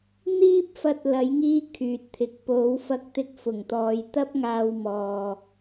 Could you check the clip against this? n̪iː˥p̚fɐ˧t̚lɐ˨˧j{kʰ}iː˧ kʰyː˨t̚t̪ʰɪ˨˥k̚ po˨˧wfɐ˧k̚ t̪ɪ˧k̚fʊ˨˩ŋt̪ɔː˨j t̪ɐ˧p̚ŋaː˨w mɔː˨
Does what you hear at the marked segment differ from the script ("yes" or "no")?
yes